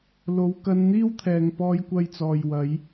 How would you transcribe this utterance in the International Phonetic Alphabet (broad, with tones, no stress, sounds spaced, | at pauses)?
l o˨ w k ɐ˧ n n̪ iː˥ w t̪ʰ ɛː˨ ŋ p ɔː˧ j kʷ ɐ˧ j t͡s ɔː˨ j w ɐ˨˧ j